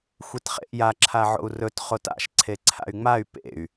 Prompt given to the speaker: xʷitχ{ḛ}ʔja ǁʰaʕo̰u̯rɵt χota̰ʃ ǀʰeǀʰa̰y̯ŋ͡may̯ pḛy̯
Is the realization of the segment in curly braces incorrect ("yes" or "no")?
no